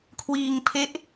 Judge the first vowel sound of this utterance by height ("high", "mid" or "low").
high